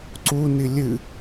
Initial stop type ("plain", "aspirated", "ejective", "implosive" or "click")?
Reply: click